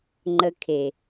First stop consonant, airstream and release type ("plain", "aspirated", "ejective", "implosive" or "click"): click